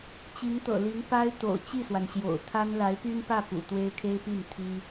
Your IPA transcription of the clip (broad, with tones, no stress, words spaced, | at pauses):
t͡ɕi˧˥ŋt̪ɤ̰˨˩li˧˥ŋ pa˥ɪ̯t̪o̰˨˩ʊ̯ t͡ɕi˥˩swa˩n ɕjo̰˨˩ʊ̯ t̪ʰa˥n la˧˥ɪ̯py˥npä˥˩ pṵ˨˩t̪we˥ɪ̯ kʰe˥ɪ̯pi˥˩n t̪ʰi˥